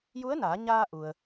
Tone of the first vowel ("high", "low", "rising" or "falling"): rising